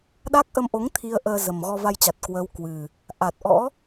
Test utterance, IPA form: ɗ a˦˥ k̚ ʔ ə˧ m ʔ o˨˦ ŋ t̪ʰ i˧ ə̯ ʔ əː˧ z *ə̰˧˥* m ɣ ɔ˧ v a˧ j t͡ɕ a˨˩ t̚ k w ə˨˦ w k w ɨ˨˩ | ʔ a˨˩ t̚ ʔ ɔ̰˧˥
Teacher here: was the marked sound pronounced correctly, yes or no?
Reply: no